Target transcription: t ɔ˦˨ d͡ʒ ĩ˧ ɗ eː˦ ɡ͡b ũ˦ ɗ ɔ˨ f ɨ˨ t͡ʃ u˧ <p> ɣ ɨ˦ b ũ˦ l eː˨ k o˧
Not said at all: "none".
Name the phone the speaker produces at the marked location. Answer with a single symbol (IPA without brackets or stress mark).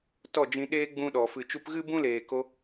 p